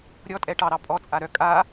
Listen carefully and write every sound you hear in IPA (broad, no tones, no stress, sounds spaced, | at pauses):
ɾʲ ɔ tʼ ɛ ʈ ɑ ɾ ɑ pʼ ɔ t͡sʼ a ɾ œ kʼ a